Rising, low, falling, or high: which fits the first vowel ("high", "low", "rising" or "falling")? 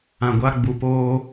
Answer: low